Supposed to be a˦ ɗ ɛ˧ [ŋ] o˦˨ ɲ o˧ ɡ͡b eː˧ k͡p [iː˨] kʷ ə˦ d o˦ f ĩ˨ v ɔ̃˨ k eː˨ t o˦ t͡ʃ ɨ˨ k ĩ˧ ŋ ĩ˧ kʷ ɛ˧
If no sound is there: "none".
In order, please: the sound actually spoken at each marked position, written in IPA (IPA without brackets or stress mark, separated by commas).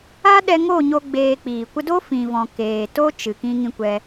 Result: ŋ, iː˨